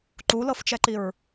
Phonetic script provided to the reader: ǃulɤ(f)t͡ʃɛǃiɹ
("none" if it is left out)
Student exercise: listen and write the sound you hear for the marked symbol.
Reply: f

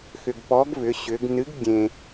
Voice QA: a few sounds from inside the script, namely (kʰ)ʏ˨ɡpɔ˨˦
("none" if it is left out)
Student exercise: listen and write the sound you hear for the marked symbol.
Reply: x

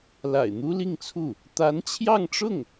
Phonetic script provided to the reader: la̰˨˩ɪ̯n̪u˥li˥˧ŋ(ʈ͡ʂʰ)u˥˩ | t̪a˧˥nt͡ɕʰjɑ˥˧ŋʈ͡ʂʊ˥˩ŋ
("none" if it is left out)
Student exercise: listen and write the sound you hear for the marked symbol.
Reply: t͡sʰ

